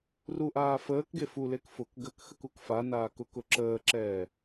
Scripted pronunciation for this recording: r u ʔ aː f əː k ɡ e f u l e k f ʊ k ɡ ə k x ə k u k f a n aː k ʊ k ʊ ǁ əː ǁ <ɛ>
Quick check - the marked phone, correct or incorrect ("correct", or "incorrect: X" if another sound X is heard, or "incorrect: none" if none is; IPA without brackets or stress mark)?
incorrect: ɛː